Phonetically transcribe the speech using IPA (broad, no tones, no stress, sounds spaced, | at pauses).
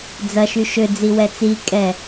d͡z ɐ ʃ y ʃ ø d͡z i w ɛ t͡s i kʼ ɛ